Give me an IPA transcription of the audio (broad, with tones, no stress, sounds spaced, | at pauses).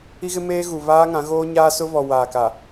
i˦ ɣ ɪ˦ m eː˦ ɣ u˨ β aː˦ ŋ ã˨˦ ɣ oː˦ ɲ aː˦ s ʊ˦ β ɔ˨ w aː˨ k a˨